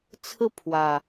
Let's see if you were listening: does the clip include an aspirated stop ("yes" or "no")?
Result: yes